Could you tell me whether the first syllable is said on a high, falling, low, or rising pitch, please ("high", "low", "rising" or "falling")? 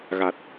low